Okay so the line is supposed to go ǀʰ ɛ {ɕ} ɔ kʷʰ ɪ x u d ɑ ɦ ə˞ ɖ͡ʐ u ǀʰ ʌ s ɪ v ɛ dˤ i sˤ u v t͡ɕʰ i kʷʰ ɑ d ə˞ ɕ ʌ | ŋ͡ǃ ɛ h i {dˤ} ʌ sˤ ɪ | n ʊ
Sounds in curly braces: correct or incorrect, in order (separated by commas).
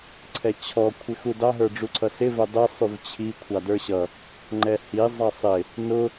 incorrect, incorrect